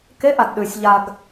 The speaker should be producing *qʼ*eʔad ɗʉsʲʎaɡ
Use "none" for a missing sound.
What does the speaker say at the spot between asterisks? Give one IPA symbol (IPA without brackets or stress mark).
k